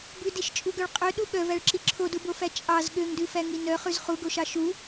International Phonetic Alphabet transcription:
bʉdiʃt͡ʃʼuɡœɭ qʼøɗu ɠœvæɭǁi ǁʰodubofæ t͡ʃʼɑz ɠøŋdʉfæŋi nœχʉz χuɡoʃɑ ʃu

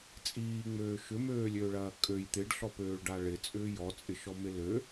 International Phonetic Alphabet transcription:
t͡sʼiːŋ͡møː ʃʏmøːlʲøːɭɐː kʼøj t̪ɪɖɬɔpøːɭɖa ɭɪ t͡sʼʏːjɔt͡sʼɪ ʃɔmɪlø

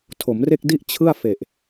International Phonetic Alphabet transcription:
tʰo˩˦mre˥˩k̚di˥˩ʔ t͡ɕʰɯ˥˩a̯ fe˨˩ʔ

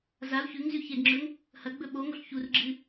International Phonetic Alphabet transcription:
zau̯ çʉŋzʉ çedŋ͡ǁɵŋ | hɐɡ͡bɵ ɓo ŋoɬçurɡ͡ǁɨ

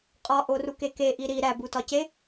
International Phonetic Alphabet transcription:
qʼɒʔoruke keʔi ɾi ɾæbutɒce

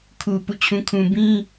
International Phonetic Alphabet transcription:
kʰu˨ pṵ˦˨t͡ɕʰũ˦kʰũ˦ bĩ˦

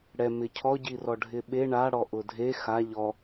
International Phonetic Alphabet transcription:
ɽɛ mɪcʰɔ ɟirɔɖʱɪɓe ɳa ɽɔʔʊdʱe xa ʎɔ

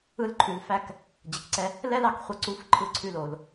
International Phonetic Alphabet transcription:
ɯ˧˥lǃʰʉ˩˧l fæ˧˥k | d͡ʑə˩˧kǀɛ˧ | lɛ˥lɑ˧k χʷɛ˧ǀu˧˥f ǃʰɯ˧ ǀʰʉ˧lo˩l

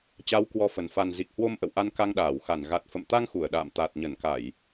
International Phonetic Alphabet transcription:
t͡ɕa˨˦wkwɔ˨˦ fə˨˩n fa˨˩nzi˨˩k̚ hwo˧m ʔə̰˧˨wʔa˧n ka˧ŋɗaː˧˩wxa˧˩n ɣa˨˩t̚fə̰˧˨mt̪a˧ŋ xu˧˩ə̯ɗa̰ː˧˨m t̪a˨˩t̚ɲə˧˩nka˧˩˨j

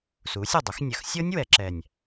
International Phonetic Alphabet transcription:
suː˩˥sʲɤ˨˩dˤʊ˩˥xnʲɐ˨˩x sʲɤ˦˥nʲ wɛ˩˧ǁɛ˨˩nʲ

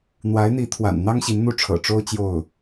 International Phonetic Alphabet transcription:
n̪wa˧˥ɪ̯n̪i˧˥t̪ʰwa̰˨˩nn̪ɑ˥ŋ ɕi˧˥nn̪u˥ʈ͡ʂʰɤ̰˨˩ ʈ͡ʂo˥ʊ̯ t͡ɕjo˥˩ʊ̯

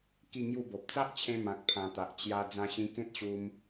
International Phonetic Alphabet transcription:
ki˥˧ŋju˥˧bo˨p̚ t͡sa˦ʔt͡ɕʰẽ˧ mã˨k̚pʰã˨˩ t̪a˨ʔ t͡ɕja˧ d͡zã˧ɕĩ˧kẽ˦t̚ɕu˧m

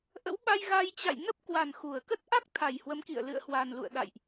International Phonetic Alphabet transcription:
ʔə̰˧˥wɓa˧j ɣa˧j t͡ɕa̰˧˨j nə˦˥p̚kwa˨˩n xu˧˩ə̯ kə˦˥t̚ʔa˦˥k̚ t̪ʰa˨˩jhwə˨˦mkḭ˧˨ə̯ lɨ̰˧˨ə̯hwa˨˩nlṵ˧˨ə̯ ɗa̰˧˨jʔ

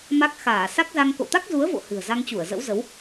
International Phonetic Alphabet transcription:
ma˦˥k̚xaː˧˩ sa˦˥k̚za˧ŋ ko̰˧˨t̪a˦˥k̚zu˨˦ə̯vo̰˧˨ hɨ̤˨˩ə̯za˧ŋt͡ɕu˧˩ə̯ zə̰˧˥wzə˨˦w

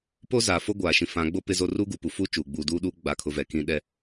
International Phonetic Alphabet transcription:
po˦ zaː˨fo˦ɡʷaː˨ ʃĩ˨fã˨˦ɡ͡bo˦ pɪ˦zo˦ ruː˦ɡu˨pu˨fuː˦ t͡ʃuː˨ ɡ͡buː˨duː˦ɗuː˦ ɡ͡ba˦˨kʰʊ˦ vɛ˨kĩ˦ ɗɛ˦

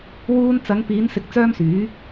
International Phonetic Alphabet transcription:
wuː˧nt͡sɐ˨˧ŋpiː˨˧n sɪ˧k̚t͡sœː˥msyː˨˥

